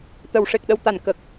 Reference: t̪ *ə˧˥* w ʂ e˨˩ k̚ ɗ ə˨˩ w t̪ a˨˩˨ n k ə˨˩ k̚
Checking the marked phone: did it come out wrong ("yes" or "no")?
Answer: yes